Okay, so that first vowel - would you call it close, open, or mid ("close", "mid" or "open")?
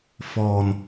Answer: mid